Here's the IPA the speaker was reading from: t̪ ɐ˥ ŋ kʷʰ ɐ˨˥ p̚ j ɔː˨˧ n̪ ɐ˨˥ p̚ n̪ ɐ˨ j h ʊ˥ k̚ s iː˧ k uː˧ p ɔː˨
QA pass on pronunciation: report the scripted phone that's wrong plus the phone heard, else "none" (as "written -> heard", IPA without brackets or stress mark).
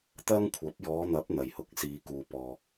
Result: ʊ˥ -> ʊ˨